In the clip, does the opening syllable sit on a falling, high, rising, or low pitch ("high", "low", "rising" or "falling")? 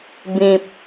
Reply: low